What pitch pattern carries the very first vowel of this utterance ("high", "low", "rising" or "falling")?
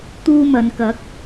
high